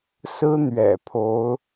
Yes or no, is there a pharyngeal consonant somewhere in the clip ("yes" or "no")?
no